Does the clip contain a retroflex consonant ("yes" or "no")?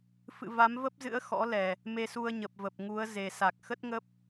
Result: no